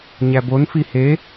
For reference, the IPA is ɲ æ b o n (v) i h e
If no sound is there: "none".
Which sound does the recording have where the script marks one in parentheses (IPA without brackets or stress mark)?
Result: f